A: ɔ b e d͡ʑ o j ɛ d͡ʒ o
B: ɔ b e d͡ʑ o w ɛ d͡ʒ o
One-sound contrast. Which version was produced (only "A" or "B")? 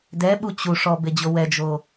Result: B